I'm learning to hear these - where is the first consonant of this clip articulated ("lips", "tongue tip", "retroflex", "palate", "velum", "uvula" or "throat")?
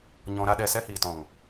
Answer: palate